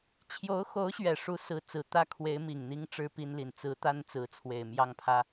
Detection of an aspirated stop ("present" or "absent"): present